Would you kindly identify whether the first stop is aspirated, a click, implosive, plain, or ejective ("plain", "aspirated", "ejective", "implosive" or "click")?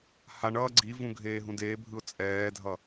click